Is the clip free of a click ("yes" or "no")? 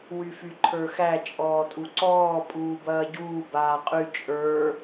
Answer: no